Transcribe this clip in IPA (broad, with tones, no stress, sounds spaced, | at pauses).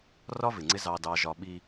r ɒ˦ v ɪ˨ ŋ͡ǀ ɪ˦ z ɑ˦ d ɑ˦ ʒ ɒ˦ ɓ i˦